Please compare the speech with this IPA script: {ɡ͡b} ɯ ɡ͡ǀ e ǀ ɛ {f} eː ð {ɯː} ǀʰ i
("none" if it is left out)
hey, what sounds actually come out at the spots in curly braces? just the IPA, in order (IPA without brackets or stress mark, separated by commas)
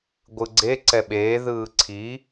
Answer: ɡʷ, ɓ, ɯː